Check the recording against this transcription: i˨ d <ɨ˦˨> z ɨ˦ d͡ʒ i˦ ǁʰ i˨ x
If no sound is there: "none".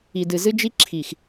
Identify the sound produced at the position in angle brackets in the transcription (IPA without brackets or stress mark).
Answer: ɨ˨